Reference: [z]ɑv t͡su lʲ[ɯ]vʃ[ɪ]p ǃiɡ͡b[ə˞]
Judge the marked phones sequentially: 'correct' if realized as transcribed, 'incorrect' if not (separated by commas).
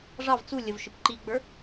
incorrect, incorrect, correct, correct